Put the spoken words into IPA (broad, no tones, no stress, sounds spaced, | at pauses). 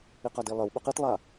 i q a d i lˠ ɘ w ɓ ɵ q i t lˠ a